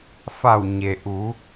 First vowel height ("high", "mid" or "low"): low